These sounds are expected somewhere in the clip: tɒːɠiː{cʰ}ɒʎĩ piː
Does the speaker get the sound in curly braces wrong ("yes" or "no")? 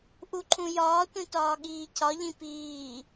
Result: no